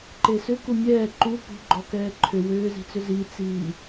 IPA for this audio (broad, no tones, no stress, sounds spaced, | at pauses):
ǃ e s ʏ k u mʲ ɛː ǃ u p ṳ ɡ͡ǃ ɔ k ɛː ǃʰ ʏ w ʏː z i̤ t͡s ʏ z i t͡s iː